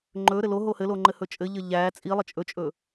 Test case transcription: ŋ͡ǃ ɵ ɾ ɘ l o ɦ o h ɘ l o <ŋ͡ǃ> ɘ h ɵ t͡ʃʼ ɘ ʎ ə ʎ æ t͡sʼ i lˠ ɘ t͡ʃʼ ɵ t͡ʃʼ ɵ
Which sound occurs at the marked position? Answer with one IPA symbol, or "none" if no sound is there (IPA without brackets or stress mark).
ŋ͡ǃ